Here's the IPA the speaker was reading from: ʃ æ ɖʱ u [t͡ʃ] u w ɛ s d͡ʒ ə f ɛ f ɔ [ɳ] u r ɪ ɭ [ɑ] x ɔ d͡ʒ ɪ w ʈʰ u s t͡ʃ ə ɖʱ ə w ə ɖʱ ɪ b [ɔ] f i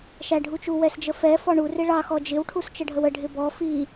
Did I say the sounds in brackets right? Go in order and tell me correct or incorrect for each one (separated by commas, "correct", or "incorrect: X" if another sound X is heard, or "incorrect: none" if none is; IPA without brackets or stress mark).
correct, correct, correct, correct